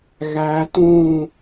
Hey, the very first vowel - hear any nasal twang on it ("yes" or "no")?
no